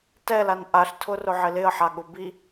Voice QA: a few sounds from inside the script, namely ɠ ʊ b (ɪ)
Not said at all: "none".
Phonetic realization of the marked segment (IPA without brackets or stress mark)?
i